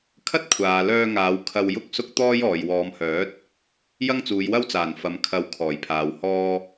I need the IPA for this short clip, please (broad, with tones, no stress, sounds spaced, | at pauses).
kʰ ɐ˥ t̚ kʷʰ aː˨ l œː˧ ŋ aː˨˧ w kʰ ɐ˧ w j ʊ˥ k̚ s ʊ˥ k̚ t̪ ɔː˥ j ɔː˨ j w ɔː˨˧ m h œː˨˥ t̚ | j ɐ˥ ŋ t͡s uː˨˧ j w ɐ˥ w t͡s aː˨˩ n f ɐ˨ m kʰ ɐ˨˧ w kʰ ɔː˨˩ j pʰ aː˨ w h ɔː˧